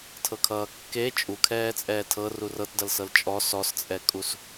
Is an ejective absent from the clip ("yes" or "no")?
no